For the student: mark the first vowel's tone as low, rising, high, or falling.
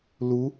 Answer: rising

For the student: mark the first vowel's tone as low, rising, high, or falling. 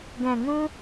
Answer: low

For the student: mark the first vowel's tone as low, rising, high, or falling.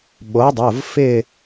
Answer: rising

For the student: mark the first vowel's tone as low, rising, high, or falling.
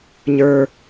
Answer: low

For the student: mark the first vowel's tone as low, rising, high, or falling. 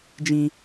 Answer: high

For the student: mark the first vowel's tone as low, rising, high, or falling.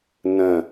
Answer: falling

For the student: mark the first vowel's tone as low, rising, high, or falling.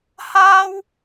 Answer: high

